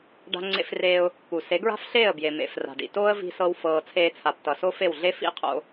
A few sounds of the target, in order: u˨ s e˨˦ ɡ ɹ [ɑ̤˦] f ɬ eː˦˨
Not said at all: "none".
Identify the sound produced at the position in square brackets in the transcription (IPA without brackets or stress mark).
a̤˦